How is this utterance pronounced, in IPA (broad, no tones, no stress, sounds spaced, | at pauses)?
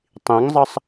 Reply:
tˤ ĩ ŋ zˤ ʌ sˤ